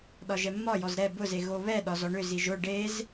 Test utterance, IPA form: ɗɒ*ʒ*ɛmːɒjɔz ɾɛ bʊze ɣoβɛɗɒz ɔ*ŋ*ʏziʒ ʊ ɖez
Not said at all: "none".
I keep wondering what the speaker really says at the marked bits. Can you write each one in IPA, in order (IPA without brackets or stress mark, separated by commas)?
ʒ, ɳ